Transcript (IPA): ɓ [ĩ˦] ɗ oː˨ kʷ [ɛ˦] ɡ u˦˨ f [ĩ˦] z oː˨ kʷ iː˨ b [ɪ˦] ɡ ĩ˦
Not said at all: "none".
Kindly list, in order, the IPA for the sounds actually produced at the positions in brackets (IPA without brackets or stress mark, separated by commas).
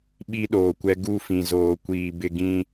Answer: i˦, ɛ˦, ĩ˨, ɪ˦